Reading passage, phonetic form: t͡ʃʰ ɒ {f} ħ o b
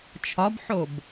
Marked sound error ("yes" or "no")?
yes